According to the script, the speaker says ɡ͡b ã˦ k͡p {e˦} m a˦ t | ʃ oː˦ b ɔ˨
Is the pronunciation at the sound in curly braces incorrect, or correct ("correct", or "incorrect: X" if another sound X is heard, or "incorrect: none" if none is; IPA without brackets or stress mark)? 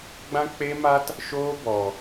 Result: correct